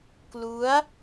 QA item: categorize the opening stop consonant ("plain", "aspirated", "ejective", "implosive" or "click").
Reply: plain